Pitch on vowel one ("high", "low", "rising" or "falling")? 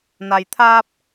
low